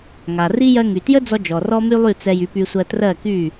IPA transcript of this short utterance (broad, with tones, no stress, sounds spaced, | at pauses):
ŋ a˩ r i˥ j ɜ˧ ŋ y˩ t j ə˥ d͡z ɔ˧ d͡ʒ ɔ˩ r ɔ˥ m y˥ lˠ y˥˩ t͡s ɛ˧ j y˩˥ p y˧ sʷ ɜ˧ t r ɜ˥˩ k y˥˩